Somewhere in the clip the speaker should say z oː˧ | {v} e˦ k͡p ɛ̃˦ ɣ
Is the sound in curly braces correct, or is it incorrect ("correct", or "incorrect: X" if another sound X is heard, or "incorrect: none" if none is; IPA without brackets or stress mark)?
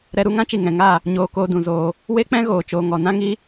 incorrect: w